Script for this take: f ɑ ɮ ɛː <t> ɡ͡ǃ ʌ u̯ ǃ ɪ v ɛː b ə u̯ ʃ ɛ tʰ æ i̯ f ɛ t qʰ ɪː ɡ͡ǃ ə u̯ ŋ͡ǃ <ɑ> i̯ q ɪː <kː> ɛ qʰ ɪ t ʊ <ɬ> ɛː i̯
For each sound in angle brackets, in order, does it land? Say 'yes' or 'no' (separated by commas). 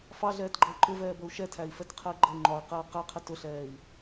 yes, no, no, yes